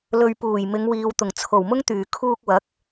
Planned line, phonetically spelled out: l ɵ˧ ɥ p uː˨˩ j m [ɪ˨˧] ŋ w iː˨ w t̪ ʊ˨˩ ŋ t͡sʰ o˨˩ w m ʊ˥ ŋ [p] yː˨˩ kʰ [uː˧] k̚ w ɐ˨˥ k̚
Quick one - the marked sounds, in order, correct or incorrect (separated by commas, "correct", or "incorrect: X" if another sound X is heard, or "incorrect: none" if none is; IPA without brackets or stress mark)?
correct, incorrect: t̪, correct